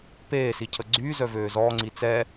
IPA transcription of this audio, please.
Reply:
p eː s i cʰ ə ɡ͡ǀ yː z œ v øː z ɔː ŋ͡ǀ i t͡s ɛ

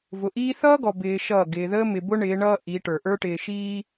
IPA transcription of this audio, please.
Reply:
v ʊ˨ ʔ iː˦ θ ʌː˦ ɡ ɔ˨ b ɪː˨ ʃ ʌː˦˨ ɡ ɪː˨ ð əː˦ m ɪ˨ b ʊ˦ ɳ ɪː˨˦ ɳ ʌː˦ ʔ i˨˦ ʈ ə˞˨ ʔ ə˞˦ ʈ ɪː˨ ʃ iː˦

